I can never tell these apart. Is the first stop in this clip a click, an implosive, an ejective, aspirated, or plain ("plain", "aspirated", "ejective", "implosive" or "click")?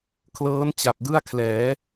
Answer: aspirated